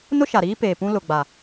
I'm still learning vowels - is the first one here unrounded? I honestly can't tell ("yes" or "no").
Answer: no